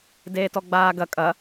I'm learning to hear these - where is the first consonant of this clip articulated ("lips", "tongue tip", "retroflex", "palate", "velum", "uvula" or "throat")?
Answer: tongue tip